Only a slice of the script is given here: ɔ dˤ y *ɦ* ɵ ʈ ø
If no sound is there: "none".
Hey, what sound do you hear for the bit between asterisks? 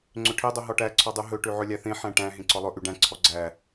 ɦ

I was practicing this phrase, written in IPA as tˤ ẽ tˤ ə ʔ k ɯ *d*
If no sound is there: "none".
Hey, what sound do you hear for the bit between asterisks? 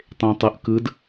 d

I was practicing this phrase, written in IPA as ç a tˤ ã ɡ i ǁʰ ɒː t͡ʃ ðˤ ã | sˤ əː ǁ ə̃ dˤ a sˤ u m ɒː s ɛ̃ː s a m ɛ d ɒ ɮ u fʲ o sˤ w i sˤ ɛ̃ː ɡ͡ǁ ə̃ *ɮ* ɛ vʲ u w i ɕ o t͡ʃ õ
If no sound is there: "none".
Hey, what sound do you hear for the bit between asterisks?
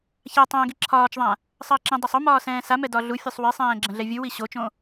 ɮ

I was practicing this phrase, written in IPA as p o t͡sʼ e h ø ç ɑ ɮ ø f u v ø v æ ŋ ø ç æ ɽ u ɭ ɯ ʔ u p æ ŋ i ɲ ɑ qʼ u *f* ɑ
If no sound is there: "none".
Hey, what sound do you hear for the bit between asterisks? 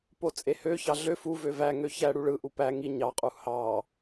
h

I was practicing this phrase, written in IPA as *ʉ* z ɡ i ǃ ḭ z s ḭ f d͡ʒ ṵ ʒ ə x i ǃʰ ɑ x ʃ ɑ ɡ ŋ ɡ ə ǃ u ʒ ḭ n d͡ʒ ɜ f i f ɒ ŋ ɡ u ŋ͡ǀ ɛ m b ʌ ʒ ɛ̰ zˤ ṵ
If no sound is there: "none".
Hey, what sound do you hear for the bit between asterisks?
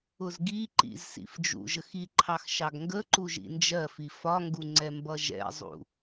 ʊ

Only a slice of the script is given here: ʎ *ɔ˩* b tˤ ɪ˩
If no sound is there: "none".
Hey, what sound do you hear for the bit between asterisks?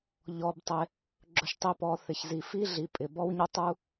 ɔ˩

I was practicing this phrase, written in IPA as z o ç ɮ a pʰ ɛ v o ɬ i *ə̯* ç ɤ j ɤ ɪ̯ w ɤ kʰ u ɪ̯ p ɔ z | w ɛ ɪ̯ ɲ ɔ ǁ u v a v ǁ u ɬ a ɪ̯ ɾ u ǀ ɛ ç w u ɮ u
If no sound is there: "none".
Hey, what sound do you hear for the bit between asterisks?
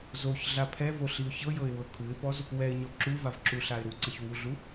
ʊ̯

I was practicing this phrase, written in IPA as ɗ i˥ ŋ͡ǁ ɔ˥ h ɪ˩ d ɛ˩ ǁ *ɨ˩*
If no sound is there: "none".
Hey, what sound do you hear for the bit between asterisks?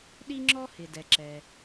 ɛ˩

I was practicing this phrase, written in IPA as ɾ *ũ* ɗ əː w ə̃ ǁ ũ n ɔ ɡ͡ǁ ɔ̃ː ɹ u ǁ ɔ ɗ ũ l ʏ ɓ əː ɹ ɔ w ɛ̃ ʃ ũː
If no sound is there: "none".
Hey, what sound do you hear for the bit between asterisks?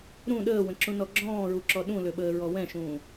ũ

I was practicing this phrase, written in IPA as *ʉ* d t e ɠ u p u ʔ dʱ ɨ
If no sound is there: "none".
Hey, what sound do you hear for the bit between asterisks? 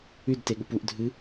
ʉ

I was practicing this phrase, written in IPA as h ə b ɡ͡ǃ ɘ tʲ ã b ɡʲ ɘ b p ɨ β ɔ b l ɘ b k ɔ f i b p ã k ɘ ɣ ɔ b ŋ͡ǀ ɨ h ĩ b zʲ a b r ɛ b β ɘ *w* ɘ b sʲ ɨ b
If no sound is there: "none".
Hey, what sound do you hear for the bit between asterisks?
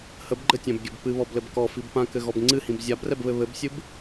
β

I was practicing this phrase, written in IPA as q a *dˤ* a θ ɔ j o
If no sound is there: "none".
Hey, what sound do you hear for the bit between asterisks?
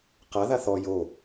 ð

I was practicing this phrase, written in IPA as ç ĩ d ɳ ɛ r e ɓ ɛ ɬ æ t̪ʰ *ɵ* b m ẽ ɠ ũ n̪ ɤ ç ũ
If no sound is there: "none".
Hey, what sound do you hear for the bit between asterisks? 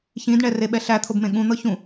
o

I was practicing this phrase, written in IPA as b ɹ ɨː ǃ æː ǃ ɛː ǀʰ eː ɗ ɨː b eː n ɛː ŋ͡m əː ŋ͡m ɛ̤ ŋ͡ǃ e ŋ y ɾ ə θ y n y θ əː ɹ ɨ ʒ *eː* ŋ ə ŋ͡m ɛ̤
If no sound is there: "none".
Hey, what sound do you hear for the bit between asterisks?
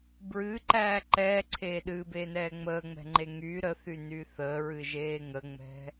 eː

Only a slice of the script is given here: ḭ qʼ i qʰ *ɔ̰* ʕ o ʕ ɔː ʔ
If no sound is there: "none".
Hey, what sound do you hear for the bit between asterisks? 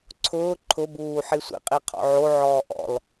ɔ̰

